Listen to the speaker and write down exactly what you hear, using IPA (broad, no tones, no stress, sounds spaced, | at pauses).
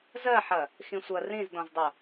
z ɜ ħ ɐ | x ĩ sʷ ɐ r ĩ z d ɔ̃ z dˤ o